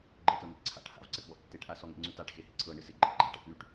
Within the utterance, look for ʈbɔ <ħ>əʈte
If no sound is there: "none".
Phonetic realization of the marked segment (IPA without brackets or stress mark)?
ʔ